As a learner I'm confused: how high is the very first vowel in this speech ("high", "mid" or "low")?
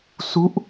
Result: high